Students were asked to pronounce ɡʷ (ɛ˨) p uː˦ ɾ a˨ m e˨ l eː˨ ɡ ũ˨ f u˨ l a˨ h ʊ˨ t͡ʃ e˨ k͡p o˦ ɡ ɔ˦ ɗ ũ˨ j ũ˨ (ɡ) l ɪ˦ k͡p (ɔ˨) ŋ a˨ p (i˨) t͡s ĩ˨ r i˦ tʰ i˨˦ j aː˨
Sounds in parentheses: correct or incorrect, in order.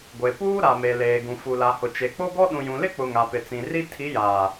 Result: incorrect, incorrect, incorrect, incorrect

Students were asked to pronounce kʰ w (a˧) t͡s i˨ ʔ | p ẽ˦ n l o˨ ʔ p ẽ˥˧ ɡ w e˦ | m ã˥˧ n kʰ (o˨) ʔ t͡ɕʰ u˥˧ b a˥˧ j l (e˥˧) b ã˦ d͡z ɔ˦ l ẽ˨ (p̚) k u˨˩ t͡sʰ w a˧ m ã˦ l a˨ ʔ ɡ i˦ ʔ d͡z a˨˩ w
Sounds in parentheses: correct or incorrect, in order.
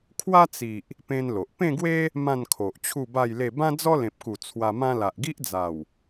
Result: incorrect, correct, correct, correct

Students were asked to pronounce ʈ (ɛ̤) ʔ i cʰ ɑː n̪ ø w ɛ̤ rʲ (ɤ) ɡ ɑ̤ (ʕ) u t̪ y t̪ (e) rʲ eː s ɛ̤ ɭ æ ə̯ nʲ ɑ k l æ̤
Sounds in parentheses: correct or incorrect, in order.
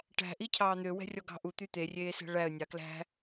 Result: incorrect, incorrect, incorrect, correct

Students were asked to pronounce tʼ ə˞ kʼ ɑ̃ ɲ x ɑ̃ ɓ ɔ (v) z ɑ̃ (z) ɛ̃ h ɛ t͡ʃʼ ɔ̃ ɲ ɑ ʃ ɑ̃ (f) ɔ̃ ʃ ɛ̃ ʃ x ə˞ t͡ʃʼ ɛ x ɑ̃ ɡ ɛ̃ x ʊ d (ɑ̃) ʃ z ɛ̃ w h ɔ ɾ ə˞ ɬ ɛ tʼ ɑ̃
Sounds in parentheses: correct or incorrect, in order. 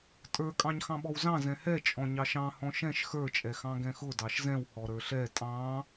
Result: incorrect, correct, incorrect, incorrect

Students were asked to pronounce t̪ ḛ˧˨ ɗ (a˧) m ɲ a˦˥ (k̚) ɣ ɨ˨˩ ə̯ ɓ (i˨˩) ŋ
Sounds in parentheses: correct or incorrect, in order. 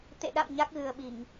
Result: incorrect, correct, incorrect

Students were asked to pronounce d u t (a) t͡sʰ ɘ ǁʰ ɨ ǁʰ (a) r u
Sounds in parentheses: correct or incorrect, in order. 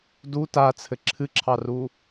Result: correct, incorrect

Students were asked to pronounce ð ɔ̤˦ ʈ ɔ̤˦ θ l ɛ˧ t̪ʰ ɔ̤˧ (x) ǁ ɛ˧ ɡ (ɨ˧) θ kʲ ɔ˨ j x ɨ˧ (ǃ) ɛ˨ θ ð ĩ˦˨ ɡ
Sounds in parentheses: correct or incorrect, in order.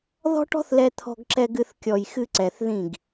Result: incorrect, correct, incorrect

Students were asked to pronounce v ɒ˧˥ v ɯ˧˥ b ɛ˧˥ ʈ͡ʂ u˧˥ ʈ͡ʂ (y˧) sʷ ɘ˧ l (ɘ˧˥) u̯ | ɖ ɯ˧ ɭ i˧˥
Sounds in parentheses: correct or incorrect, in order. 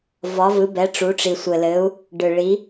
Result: incorrect, correct

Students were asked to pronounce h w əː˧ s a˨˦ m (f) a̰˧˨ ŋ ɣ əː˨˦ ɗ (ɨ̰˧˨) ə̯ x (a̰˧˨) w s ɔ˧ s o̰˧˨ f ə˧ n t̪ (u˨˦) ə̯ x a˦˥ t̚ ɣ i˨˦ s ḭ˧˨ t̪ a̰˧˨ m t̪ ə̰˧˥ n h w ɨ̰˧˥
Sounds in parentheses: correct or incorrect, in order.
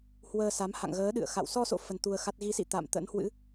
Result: incorrect, correct, correct, incorrect

